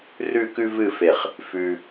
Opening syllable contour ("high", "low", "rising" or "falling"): falling